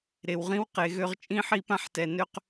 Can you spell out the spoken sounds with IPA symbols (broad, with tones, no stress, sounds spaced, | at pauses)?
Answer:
ɾ e˨ w ʁ ĩ˦ w q e˨ ɣ ø˦ ʁ t͡ʃʼ ĩ˦ ħ i˦ p ã˦ ħ t ɛ˨ n ø˦ q